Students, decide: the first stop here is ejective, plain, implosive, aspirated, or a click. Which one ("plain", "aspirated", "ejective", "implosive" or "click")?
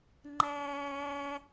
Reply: click